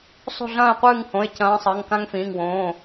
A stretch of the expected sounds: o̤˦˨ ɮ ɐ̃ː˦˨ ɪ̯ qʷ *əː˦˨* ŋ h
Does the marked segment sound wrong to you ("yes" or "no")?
yes